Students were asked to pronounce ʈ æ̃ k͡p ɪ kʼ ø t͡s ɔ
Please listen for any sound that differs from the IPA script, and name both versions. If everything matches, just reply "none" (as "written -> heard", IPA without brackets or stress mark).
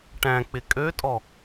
t͡s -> tʼ